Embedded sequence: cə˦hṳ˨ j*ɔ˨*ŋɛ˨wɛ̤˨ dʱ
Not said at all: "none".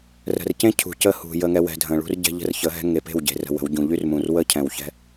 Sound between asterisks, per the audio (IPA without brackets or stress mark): ə˨